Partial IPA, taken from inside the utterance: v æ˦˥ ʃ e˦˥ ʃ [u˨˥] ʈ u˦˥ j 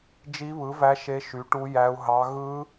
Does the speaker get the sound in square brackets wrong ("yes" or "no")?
yes